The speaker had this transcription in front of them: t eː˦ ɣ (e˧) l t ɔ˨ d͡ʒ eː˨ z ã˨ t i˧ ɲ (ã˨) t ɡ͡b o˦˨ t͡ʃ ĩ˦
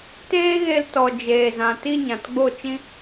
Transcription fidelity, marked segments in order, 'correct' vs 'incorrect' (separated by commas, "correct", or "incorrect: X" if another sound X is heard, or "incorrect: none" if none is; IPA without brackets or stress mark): correct, correct